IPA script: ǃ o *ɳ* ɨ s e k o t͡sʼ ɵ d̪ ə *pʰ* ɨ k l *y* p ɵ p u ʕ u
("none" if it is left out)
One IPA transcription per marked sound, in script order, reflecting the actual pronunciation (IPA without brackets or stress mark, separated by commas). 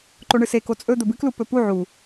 ɳ, b, u